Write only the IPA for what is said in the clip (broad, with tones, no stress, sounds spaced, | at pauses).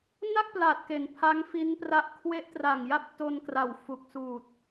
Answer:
n a˥˩ k̚ p l aː˨˩ t̚ k e˩˦ n pʰ a˦˥ ŋ f i˦˥ n p r a˦˥ ʔ kʰ w e˦˥ ʔ t r a˨˩ ŋ j a˦˥ p̚ t o˧ n k r a˨˩ w f u˨˩ k̚ s uː˨˩ t̚